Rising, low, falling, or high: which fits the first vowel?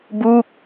falling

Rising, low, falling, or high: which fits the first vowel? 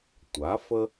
rising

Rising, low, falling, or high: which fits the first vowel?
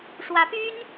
rising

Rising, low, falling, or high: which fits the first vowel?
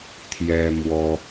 high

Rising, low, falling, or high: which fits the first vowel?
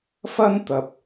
high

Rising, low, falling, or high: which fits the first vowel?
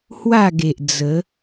falling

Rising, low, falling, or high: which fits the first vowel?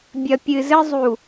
low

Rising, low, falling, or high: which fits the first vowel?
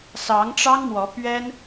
rising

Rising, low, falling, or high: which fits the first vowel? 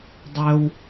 high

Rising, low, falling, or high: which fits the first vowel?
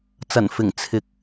low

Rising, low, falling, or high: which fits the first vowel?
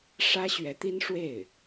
high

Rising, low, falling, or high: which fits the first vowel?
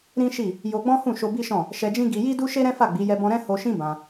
high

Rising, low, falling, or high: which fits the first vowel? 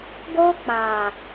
high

